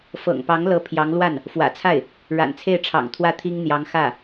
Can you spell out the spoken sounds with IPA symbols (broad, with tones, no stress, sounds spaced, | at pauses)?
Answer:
f ɤ̰˨˩ ŋ p ɑ˧˥ ŋ l ɤ˧˥ pʰ j ɑ˧˥ ŋ l w a˥˩ n | f w ä̰˨˩ t͡sʰ a˥˩ ɪ̯ | ɻ a̰˨˩ n t͡sʰ e˥˩ ɪ̯ ʈ͡ʂʰ ɑ̰˨˩ ŋ t̪ʰ w ä˥˩ t̪ʰ i˥ ŋ n̪ j ɑ˧˥ ŋ x ä˥˩